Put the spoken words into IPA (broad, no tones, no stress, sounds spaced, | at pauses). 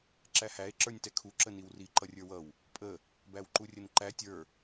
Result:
ǁ æ h æ e̯ ǁ ə˞ nʲ t ɛ kʰ u ǁ ə n i w r i ǃ ʌ rʲ ə˞ w ʌ w | pʼ ə | b æ w ǃ u rʲ ə n ǃ æ tʲ ə˞